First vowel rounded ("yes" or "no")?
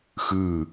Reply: no